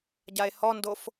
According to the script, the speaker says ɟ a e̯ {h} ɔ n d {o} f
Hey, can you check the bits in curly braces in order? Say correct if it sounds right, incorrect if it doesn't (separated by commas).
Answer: correct, correct